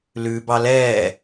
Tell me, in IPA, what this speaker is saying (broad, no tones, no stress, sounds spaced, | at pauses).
l ʉ b ɑ l ɛː